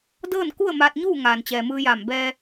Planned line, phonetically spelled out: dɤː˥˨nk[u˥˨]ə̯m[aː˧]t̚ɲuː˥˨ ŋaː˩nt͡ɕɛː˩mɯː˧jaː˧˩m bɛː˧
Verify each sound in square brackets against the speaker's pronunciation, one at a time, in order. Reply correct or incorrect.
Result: correct, correct

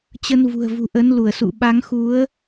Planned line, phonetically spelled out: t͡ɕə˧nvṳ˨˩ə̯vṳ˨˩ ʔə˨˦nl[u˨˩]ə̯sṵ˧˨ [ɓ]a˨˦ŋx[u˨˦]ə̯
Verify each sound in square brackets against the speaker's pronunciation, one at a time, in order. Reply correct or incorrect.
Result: incorrect, correct, correct

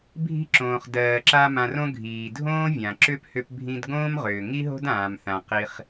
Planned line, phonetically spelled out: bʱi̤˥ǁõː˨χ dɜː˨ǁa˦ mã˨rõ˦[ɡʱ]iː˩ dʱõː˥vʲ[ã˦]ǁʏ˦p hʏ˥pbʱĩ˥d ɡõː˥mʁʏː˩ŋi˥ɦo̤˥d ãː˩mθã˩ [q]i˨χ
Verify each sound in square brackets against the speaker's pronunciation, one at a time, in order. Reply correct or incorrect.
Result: correct, incorrect, correct

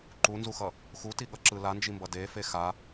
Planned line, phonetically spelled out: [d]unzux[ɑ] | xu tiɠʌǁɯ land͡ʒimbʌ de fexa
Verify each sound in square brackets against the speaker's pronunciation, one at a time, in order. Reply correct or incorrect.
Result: incorrect, incorrect

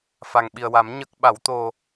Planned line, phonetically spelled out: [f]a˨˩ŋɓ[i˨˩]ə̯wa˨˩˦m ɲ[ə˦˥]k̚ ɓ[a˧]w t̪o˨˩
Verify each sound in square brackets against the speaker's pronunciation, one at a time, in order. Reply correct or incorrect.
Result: correct, correct, correct, incorrect

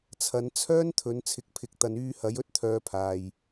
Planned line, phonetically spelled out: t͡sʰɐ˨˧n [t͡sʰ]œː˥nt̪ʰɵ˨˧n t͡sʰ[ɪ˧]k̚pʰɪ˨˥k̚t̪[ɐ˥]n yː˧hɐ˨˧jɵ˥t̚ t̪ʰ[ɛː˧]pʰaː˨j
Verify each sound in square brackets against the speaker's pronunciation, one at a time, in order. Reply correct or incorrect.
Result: correct, incorrect, incorrect, incorrect

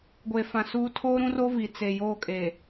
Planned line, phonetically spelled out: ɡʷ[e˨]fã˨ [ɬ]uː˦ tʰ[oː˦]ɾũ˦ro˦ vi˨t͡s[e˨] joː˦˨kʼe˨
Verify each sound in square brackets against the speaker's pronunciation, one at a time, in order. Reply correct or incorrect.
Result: correct, incorrect, correct, correct

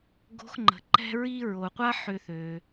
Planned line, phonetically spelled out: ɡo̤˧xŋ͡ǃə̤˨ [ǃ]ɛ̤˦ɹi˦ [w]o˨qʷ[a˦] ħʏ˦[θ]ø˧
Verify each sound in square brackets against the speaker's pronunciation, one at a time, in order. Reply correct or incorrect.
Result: correct, incorrect, correct, correct

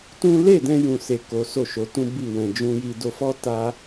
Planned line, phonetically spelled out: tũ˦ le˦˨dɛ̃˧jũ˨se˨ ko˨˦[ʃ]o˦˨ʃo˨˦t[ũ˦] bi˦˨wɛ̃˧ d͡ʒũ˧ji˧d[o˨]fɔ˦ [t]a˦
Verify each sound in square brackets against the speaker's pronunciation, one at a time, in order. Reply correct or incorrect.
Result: incorrect, correct, incorrect, correct

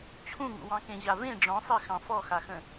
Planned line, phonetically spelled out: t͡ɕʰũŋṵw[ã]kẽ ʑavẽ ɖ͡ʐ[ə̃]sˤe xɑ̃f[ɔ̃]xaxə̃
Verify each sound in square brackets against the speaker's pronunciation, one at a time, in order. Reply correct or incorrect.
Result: incorrect, incorrect, incorrect

